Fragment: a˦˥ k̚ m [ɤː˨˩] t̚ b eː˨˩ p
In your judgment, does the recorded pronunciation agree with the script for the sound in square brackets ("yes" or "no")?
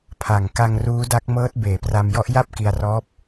no